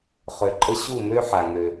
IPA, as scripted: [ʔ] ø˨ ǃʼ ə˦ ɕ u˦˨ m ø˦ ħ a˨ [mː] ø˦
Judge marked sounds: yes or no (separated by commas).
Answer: no, no